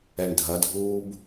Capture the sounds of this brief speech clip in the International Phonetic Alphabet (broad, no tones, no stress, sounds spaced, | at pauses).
ɛ ɳ dʱ ɐ dʱ uː b